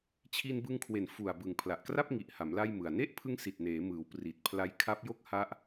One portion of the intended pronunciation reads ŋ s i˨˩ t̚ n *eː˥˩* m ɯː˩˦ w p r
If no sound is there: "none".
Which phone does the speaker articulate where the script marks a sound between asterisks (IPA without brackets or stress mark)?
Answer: eː˩˦